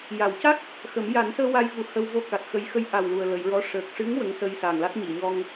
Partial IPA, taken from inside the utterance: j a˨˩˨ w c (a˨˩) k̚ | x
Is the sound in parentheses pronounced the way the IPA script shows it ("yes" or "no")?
no